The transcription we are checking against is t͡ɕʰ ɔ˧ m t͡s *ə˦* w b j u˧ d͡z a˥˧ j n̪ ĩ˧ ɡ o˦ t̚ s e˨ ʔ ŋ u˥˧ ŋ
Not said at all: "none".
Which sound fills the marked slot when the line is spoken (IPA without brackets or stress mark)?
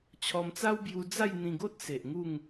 a˦